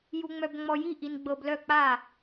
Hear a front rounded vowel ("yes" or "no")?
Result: yes